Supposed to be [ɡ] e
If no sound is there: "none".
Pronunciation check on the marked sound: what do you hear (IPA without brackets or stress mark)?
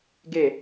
ɡ